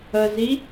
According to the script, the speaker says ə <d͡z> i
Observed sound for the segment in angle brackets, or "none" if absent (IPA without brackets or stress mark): z